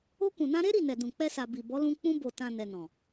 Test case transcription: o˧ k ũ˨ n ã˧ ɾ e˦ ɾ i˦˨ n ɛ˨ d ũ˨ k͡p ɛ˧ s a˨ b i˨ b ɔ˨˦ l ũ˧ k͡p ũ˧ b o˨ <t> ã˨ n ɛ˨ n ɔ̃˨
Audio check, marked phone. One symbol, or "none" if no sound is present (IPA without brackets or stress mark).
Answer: t